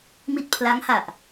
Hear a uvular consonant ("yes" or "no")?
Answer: no